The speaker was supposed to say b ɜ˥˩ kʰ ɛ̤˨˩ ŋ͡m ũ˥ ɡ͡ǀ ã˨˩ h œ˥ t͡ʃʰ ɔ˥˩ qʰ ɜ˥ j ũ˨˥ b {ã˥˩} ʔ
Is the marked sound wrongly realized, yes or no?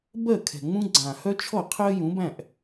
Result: yes